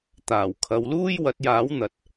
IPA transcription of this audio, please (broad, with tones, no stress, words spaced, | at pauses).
t̪aː˨˩wkʰɐ˨˧wluː˥j wɐ˨˥t̚jaː˨˥wn̪ɐ˨t̚